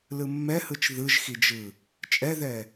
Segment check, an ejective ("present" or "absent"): present